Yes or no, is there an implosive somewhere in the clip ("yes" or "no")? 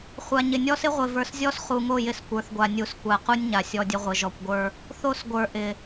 no